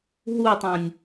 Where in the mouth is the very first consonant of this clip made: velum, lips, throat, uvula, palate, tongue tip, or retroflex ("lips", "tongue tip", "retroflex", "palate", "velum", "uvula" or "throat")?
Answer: throat